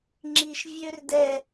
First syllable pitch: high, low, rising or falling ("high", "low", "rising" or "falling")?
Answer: high